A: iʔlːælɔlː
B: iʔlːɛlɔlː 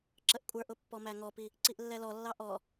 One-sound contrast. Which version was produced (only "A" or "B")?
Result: B